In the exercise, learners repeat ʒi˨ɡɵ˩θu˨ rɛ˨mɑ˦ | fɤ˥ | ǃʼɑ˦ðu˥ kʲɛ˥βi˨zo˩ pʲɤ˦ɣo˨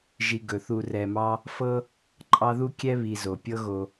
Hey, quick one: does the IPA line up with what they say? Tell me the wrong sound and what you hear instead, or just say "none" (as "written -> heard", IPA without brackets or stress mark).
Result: none